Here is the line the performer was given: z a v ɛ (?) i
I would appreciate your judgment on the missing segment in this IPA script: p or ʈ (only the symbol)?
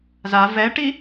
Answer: ʈ